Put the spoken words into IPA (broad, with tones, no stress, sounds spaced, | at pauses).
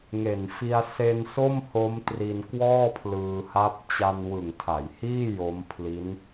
ŋ e˨˩ n f i˧ a̯ s e˧ n s o˥˩ m h o˦˥ m t r i˧ n k w ɔː˥˩ pʰ l ɯː˧ h a˦˥ p̚ t͡ɕ a˧ n w ɯ˨˩ ŋ tʰ a˩˦ j h iː˥˩ j o˦˥ m pʰ l i˦˥ n